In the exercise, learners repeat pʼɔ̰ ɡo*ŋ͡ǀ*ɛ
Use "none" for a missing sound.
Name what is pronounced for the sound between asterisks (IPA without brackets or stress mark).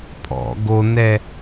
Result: n